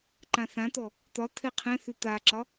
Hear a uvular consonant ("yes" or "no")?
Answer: yes